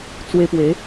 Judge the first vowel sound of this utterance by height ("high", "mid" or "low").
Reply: mid